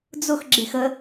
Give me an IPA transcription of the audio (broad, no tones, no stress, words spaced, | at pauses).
d͡zʊx ɡ͡ǁexə